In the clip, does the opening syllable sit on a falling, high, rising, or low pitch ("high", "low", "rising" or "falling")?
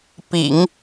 low